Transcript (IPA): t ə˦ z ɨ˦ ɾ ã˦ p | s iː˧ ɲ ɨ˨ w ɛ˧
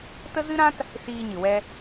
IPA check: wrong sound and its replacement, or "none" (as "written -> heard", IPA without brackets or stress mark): p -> t